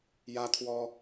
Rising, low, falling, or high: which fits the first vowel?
high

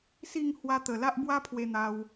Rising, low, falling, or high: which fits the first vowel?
falling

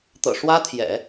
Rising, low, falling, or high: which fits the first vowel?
low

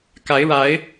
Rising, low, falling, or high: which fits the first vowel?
rising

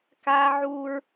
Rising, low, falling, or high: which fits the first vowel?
high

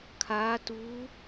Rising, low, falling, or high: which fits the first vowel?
rising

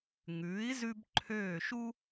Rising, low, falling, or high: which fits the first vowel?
rising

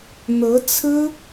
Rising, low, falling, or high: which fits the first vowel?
rising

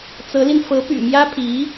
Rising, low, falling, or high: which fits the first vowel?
rising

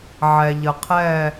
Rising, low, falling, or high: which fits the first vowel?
low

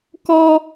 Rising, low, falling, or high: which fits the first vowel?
high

